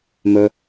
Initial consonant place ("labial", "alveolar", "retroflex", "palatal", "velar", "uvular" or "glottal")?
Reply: labial